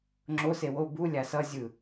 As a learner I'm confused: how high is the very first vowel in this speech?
mid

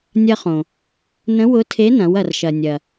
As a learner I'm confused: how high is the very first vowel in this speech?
low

